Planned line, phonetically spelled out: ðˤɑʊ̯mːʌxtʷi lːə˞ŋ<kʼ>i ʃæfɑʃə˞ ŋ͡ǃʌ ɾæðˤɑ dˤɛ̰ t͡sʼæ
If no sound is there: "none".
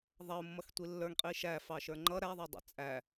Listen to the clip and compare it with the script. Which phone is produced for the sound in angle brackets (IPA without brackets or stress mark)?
qʼ